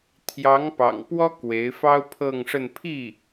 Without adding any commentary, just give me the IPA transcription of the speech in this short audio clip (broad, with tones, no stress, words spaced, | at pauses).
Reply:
t̪ʰjɑ˧˥ŋpɑ̰˨˩ŋpwɔ˥ kwe˧˥ɪ̯ fɑ˥ʊ̯pʰɤ˥˧ŋʂə˥˧n pʰi˥˩